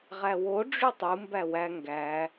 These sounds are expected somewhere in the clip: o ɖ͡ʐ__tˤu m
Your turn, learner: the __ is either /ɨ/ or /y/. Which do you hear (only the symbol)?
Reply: y